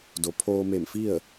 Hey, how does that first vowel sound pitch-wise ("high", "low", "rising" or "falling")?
low